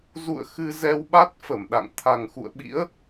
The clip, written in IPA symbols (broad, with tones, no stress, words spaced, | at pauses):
zṵ˧˨ə̯ xɨ˧zɛ˧w ɓa˦˥t̚fə˧˩mɗa̰˧˨ŋ t̪ʰa˨˩ŋxṵ˧˨ə̯ɓḭ˧˥ə̯